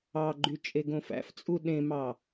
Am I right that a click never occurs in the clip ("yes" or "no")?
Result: no